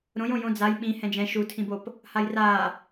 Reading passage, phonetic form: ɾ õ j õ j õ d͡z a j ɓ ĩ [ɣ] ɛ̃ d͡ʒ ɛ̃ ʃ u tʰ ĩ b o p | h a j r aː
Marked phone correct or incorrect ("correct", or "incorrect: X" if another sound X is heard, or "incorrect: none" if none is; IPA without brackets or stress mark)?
incorrect: h